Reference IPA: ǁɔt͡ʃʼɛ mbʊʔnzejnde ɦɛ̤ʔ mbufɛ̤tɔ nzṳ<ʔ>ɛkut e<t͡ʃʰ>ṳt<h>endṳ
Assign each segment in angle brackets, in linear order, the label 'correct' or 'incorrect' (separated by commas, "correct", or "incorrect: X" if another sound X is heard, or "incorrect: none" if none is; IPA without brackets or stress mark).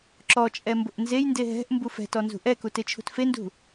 correct, correct, incorrect: f